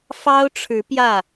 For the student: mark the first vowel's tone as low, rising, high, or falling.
high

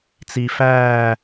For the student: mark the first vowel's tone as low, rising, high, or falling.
low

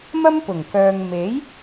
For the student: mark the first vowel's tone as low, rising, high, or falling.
high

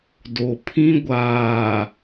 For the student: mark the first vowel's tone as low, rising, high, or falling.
low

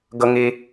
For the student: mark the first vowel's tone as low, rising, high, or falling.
high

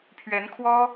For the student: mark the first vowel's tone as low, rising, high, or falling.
rising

